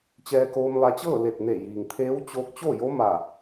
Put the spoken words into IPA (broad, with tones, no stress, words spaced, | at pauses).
t͡ɕɛː˧koː˧mʋa˧t͡ɕɤː˥˨ le˧˩t̚ne˧˩ jiː˩ŋt̪ʰeː˧˥wt͡ɕoː˧k̚ t͡ɕo˥˨jo˧˥ ma˧˩